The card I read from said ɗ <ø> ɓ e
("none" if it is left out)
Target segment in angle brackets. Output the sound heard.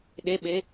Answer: e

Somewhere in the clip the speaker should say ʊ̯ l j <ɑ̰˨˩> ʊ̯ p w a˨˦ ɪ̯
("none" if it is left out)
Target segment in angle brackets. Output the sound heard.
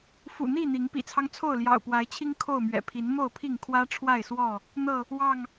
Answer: ɑ̰˨˩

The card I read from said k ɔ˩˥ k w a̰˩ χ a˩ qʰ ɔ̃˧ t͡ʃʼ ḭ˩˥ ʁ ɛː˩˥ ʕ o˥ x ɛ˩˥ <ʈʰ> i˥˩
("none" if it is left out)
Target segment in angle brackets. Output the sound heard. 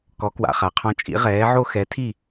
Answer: tʰ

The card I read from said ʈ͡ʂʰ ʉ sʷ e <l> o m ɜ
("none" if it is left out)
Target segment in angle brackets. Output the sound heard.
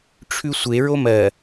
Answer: ɹ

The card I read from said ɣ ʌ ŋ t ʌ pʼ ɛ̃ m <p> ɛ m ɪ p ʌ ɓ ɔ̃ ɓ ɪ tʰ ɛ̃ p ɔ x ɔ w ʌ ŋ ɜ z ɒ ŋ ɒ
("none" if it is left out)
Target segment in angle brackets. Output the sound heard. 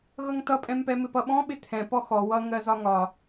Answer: p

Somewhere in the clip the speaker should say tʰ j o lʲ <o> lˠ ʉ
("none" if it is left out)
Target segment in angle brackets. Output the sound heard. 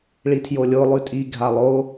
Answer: o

